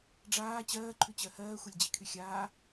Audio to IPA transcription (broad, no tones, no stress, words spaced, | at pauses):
ɖ͡ʐaː t͡ɕɜːǃʰʉt͡ɕɜ hɜːxʷelʲd͡ʑikʰy xʲaː